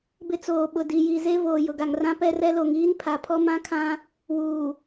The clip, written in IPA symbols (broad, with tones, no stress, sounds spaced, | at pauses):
b ɪ˦ t͡s oː˨ ɓ ʊ˨ d i˨ j i˨ z e˦ v oː˨ j ʊ˨ ɡ a˨ ŋ r ã˦ p ɛ˦ r ɛ˦ l o˨ ŋ iː˦ n pʰ a˨ pʰ ɔ˦ m ã˦ kʰ ã˦ | w uː˨